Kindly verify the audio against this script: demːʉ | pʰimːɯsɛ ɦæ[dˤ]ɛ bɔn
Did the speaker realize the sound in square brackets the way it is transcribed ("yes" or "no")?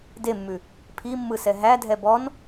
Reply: no